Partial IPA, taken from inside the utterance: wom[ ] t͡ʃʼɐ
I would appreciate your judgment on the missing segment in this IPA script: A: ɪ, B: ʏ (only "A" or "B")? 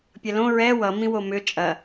B